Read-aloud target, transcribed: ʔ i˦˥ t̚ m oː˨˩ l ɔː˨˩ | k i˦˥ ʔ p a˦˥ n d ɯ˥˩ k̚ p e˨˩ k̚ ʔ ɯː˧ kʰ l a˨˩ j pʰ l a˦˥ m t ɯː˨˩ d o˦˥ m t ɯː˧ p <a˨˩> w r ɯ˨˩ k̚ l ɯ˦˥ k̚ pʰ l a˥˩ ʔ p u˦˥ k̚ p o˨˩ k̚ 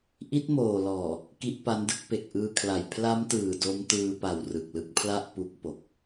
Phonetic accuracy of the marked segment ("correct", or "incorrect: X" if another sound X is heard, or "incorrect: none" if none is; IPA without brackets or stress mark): correct